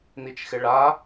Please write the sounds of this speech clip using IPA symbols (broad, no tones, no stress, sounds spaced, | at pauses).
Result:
n i t͡ʃ x ɪ ɭ a